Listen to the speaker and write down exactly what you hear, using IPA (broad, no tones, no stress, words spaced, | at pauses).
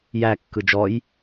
jæ kːɯd͡ʒɔj